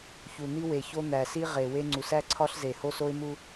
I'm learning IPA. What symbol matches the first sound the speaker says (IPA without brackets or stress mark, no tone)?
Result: ç